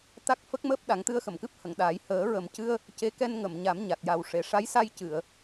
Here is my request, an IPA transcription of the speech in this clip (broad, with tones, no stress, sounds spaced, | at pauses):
t̪ a˦˥ k̚ f ə˦˥ k̚ m əː˦˥ p̚ ɗ a˨˩˦ ŋ t̪ ɨ˧ ə̯ x ə˨˩˨ m k ɨ˦˥ p̚ h ə˨˩˨ ŋ ɗ aː˨˩˦ j h əː˨˩˦ ɹ ə˨˩ m c ɨ˧ ə̯ | c e˧˥ k ɛ˧ n ŋ ə˨˩˨ m ɲ a˨˩˦ m ɲ a˨˩ t̚ j a˨˩ w ʂ e˨˩˨ ʂ a˧˥ j s a˧ j c ɨ˨˩˨ ə̯